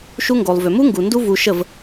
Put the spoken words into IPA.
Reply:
ʃu˧ŋɡo˨lˠ vʏ˨mu˦ŋɡu˨ ndu˦vu˧ʃə˦˨v

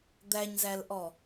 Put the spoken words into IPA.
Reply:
d̪æɲzælʔɔ

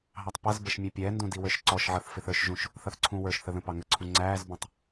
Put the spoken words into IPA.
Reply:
ɦɑtˤpʌzbəʃ mʲæpʲɛːndũ diwə˞ʃǀɔʃʕʌθ fɪθə˞ʃʒũʃ | θʌθǀʰũwə˞ʃθə ðə̃pɑŋəǀʰũ ŋ͡ǀæːzbũtˤ

